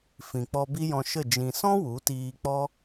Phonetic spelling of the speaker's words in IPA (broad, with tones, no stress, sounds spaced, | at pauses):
f ĩ˨ k͡p ɔ˧ b i˦ j ɔ̃˧ ʃ ə˦˨ d͡ʒ ĩ˨ s ɔ̃˦ w u˨˦ t iː˧ k͡p ɔ˦